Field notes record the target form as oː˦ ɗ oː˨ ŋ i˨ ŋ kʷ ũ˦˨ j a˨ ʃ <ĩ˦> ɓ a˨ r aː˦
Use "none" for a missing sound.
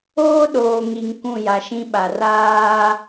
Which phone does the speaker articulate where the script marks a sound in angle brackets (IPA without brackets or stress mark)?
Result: ĩ˦